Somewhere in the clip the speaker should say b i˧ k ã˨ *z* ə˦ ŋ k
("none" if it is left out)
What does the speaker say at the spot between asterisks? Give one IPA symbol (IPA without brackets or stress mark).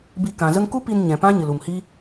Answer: z